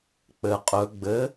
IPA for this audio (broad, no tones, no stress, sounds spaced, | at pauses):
k͡p ɘ qʼ ɵ ɡ͡b ɘ